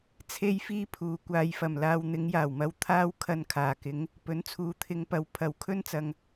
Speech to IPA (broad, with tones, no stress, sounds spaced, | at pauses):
t͡sʰ e˥ j f iː˥ pʰ uː˨˥ kʷ aː˧ j f ɐ˨˩ m l aː˧ w n̪ ɪ˨˧ ŋ j aː˨˩ w m ɐ˧ w t̪ʰ aː˥ w kʰ ɐ˧ n kʰ aː˨˩ k ɪ˨˥ ŋ | p ɵ˨˥ n t͡sʰ uː˨˥ t̪ʰ ɪ˨˧ ŋ p ɐ˨˧ w pʰ ɐ˨˥ w kʰ ɵ˥ n t͡s ɐ˨ ŋ